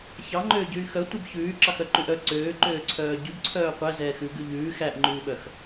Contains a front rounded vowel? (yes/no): yes